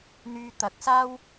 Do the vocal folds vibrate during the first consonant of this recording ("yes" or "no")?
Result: yes